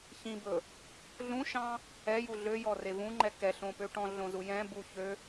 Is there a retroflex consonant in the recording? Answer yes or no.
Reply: yes